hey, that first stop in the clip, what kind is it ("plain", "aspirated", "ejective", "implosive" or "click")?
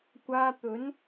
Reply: plain